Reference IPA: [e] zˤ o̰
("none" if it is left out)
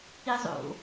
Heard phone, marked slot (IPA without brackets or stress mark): i